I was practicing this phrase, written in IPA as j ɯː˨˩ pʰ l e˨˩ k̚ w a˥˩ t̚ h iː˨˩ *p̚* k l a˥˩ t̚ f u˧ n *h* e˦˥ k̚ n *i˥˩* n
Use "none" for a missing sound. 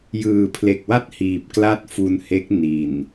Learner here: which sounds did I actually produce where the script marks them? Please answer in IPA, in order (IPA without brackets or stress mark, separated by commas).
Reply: p̚, h, i˨˩